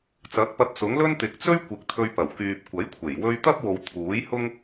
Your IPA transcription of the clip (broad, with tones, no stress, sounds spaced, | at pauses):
t͡s ɐ˨˥ k̚ p ɐ˧ p̚ s ʊ˨˥ ŋ l ɵ˥ n t̪ ɪ˨ k̚ t͡s ɵ˥ ɥ kʷ ɪ˨˥ k̚ t̪ʰ ɵ˧ ɥ p ɐ˨˩ w k yː˨ p̚ kʷ ɐ˨˥ j kʷʰ e˨˩ j w ɵ˧ ɥ t̪ ɐ˥ p̚ w o˨ w t̪ʰ uː˨˥ j h ʊ˥ ŋ